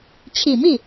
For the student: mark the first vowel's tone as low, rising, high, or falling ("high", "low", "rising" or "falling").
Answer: low